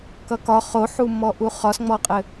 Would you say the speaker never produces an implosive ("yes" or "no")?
yes